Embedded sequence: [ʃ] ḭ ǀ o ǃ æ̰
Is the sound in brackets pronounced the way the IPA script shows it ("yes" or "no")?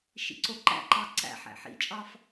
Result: yes